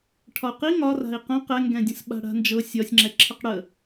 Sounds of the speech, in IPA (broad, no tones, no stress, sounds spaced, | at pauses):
ʈʰ ɒ u̯ q i ŋ ɒ r a̤ i̯ q ə̃ q ɛ ŋ ɡ ɛ̃ dʲ ə̃ s ɓ a̤ ɽ a̤ n d͡ʒ ɤ sʲ ɒ sʲ ŋ͡ǁ ɛ ǁʰ ə q ɽ ə